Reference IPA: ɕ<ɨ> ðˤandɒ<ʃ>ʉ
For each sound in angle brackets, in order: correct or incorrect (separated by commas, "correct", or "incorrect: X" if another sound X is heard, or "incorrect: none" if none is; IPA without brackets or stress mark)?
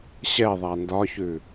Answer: incorrect: ɛ, incorrect: ç